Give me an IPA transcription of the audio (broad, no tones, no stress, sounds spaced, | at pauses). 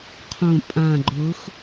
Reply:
qʰ õ pʼ ã ɡ͡ǃ ʊ x